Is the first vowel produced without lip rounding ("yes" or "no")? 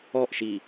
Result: no